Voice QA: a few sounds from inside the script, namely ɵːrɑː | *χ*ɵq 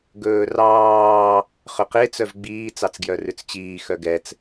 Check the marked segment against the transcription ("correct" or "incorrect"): correct